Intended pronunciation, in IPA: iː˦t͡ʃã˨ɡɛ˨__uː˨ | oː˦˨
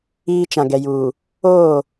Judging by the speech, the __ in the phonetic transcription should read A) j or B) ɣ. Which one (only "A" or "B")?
A